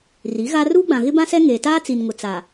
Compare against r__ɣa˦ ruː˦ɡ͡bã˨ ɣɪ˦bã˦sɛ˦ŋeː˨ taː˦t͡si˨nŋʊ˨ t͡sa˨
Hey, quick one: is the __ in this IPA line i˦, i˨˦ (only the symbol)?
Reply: i˨˦